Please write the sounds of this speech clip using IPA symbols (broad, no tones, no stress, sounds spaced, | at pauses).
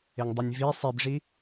e ŋ dˤ e nʲ v i sˤ i b ʐ i